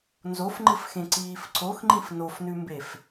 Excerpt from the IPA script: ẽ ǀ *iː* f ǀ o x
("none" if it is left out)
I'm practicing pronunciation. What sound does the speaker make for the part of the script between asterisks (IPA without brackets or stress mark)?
iː